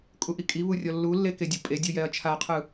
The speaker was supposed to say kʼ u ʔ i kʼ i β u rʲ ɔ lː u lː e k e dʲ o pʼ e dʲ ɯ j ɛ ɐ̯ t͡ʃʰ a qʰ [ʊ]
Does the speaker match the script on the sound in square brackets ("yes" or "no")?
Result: no